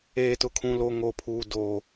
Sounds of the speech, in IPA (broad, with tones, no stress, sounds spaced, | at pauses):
eː˨ t ʊ˨ kʰ ũ˨ l o˨ ŋ o˨ pʰ uː˨ d oː˨